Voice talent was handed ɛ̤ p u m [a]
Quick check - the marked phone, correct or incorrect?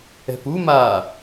incorrect